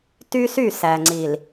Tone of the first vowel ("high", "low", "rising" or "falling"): high